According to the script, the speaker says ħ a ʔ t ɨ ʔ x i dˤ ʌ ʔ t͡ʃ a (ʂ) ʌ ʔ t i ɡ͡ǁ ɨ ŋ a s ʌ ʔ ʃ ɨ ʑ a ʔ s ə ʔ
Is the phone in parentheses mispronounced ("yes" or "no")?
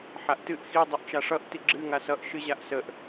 no